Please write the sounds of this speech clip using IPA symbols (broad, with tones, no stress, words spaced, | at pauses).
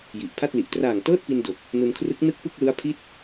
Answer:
ji˨˩ʔpʰa˥˩t̚li˨˩ʔ traː˨˩ŋ tɤː˥˩t̚pi˧n do˨˩k̚ | nu˧nkʰrɯ˦˥k̚ nɯ˥˩k̚pɯ˥˩k̚lɯ˦˥a̯ pʰi˥˩t̚